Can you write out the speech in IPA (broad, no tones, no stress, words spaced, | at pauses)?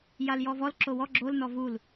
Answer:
jaljɔvɔl ǁowɔ ɡ͡ǁol nɔvul